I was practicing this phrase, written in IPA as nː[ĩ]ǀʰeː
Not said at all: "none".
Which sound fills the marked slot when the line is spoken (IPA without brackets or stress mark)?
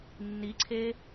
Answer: i